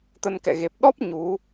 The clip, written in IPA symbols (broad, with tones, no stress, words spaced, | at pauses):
t̪ə˧nkɛ̰˧˨ ɣe˨˩p̚ ɗɔ˦˥p̚ ɲu˨˦